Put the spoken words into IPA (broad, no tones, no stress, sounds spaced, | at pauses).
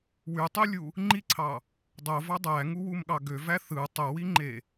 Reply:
w y tˤ y lʲ u | ŋ͡ǃ i ǀʰ ɑ | dˤ o v ɑ dˤ æ ŋ u w u m ɠ ɑ ɡ ø v æ θ ɯ tˤ o w i ŋ͡ǃ e